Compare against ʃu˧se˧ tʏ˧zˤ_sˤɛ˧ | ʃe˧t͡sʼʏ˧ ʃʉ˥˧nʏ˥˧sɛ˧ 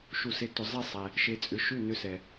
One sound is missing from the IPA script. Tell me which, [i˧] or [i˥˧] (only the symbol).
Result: i˥˧